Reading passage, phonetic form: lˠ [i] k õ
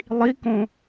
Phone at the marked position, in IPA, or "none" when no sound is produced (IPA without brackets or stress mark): i